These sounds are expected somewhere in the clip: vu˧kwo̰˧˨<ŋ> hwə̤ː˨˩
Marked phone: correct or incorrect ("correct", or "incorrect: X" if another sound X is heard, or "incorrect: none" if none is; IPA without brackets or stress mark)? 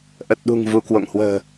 correct